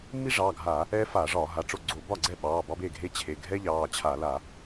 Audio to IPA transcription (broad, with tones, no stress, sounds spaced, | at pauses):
mː i˥ ʐ ɑː˩˧˩ ɡʱ aː˧˩˧ | ɛː˥ f aː˧˩˧ ʐ ɒː˧˩˧ ɦ a˩˧˩ ʈ͡ʂ o˥˩ ɡ͡ǀ o˧˩˧ b ɒ˥˩ ɡ͡ǀ ɛ˥˩ ɓ ɑː˩˧˩ b ɑ˥ b e˥˩ ɡʱ e˥ t͡ɕʰ e˩˧˩ ɡʱ ɛ˥ ʎ ɑː˩˧˩ t͡ɕʰ a˧˩˧ l a˧˩˧